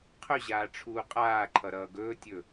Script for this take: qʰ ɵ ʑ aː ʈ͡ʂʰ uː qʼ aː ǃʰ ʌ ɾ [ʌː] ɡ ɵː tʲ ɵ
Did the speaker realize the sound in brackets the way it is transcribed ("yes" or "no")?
yes